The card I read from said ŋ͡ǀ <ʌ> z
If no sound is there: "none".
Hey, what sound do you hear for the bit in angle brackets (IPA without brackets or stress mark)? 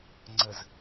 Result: ə